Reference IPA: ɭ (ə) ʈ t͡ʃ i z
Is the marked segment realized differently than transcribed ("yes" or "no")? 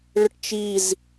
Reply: no